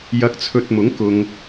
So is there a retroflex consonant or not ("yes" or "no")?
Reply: no